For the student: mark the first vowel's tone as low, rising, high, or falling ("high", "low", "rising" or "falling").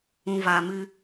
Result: low